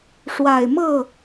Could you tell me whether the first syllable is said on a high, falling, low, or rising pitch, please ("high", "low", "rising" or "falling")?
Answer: low